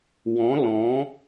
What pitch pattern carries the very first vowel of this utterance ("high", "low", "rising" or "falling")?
rising